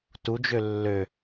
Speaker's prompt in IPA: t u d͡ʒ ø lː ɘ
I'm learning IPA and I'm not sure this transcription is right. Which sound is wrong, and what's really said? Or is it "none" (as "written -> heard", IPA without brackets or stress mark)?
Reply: ɘ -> ø